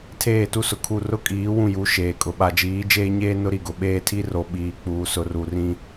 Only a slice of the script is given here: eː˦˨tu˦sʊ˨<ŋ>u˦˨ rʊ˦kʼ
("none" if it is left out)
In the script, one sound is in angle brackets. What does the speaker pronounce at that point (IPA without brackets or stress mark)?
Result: kʰ